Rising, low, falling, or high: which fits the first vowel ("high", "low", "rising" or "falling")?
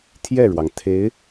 falling